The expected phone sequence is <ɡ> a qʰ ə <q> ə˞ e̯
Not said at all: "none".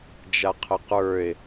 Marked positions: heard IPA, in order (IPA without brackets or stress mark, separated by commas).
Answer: d͡ʒ, q